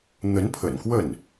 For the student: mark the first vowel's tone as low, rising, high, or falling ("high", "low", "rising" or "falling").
rising